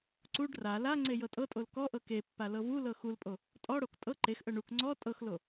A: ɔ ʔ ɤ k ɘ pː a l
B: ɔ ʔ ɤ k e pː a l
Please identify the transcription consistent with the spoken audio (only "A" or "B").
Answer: B